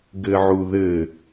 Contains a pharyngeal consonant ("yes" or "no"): yes